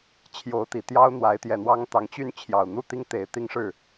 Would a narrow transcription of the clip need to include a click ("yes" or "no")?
no